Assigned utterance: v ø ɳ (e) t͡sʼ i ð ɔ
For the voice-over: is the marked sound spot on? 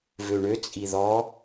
no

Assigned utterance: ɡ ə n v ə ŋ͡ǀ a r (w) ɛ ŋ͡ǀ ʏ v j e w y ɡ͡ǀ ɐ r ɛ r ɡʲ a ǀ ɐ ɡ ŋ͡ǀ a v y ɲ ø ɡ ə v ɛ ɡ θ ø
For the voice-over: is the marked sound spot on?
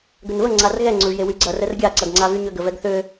no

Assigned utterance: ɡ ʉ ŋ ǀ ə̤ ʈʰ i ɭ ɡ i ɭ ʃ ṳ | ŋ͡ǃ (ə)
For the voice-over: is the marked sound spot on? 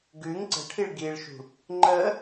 yes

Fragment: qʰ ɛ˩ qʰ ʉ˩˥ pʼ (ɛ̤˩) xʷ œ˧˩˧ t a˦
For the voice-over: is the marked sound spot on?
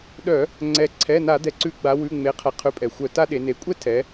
no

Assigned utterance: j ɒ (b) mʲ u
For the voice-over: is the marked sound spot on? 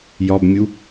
yes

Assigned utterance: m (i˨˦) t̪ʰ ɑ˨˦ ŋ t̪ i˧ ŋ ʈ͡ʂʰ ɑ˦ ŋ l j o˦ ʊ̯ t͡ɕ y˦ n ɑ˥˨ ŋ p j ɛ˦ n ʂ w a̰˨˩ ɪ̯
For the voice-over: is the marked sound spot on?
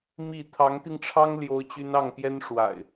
no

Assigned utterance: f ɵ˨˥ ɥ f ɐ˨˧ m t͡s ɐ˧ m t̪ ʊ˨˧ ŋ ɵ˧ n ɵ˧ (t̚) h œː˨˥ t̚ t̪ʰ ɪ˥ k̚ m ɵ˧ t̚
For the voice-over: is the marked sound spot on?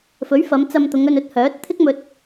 yes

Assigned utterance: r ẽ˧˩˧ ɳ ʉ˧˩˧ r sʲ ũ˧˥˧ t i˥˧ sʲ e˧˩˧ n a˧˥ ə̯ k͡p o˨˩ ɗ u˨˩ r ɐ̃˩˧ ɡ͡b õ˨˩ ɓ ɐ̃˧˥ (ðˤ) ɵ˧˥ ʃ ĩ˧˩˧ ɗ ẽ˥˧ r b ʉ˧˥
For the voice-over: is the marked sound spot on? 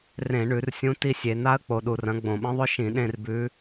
yes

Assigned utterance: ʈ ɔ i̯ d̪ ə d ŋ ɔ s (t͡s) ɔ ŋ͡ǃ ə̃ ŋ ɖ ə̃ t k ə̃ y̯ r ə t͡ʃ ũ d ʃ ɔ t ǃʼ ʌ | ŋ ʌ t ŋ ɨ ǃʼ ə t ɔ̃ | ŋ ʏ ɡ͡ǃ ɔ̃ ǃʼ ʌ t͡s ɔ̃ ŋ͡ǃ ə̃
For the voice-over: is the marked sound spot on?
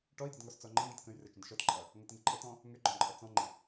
yes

